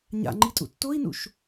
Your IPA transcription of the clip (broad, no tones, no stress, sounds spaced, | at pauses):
ɲ a̰ ŋ͡ǃ i tʼ ṵ tː o i̯ n ṵ ʃ